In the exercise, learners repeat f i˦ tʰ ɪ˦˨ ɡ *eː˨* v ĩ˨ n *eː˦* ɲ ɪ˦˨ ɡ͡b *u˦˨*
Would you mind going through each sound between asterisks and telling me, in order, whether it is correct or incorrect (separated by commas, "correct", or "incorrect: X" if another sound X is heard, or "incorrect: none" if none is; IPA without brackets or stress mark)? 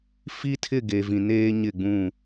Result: incorrect: e˨, correct, incorrect: ũ˦˨